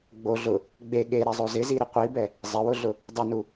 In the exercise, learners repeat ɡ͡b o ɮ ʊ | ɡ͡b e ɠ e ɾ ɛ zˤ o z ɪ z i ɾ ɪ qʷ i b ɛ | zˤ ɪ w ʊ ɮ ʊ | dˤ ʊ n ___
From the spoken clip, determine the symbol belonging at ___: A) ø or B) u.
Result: B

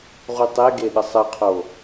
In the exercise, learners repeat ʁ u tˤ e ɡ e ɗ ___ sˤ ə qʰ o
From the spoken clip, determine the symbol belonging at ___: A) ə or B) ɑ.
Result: A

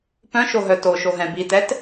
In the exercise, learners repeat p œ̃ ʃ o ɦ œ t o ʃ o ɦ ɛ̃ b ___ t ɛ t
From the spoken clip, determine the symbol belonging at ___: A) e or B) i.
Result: B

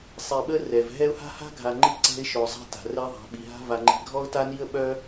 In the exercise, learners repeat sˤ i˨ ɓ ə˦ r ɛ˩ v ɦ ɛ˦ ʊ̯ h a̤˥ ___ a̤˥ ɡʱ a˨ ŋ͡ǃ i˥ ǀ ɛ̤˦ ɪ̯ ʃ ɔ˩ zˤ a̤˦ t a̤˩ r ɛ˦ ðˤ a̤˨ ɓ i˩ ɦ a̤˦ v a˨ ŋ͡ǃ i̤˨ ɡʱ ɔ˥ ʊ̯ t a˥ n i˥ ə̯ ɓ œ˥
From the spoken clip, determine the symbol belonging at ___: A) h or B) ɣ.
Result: A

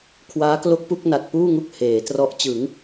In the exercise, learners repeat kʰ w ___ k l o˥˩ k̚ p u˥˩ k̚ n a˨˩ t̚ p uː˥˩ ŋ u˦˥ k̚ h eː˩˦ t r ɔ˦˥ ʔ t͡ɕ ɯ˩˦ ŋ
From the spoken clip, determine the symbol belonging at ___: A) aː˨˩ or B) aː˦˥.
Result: B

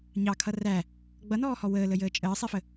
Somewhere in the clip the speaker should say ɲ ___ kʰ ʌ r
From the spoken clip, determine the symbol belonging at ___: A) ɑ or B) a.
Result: A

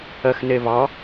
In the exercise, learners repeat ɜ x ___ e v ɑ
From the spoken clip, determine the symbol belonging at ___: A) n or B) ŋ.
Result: A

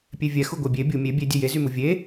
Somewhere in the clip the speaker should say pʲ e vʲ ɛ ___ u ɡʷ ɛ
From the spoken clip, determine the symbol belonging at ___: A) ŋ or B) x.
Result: B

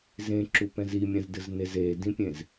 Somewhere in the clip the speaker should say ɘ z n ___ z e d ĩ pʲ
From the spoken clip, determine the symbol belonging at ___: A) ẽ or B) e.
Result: B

